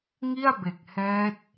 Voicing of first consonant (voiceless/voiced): voiced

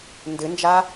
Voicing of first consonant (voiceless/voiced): voiced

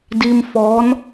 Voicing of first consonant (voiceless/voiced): voiced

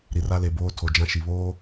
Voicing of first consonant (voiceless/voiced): voiced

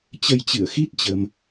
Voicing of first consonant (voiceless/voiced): voiceless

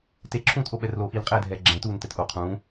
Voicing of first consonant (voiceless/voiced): voiceless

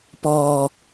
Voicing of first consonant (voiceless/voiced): voiceless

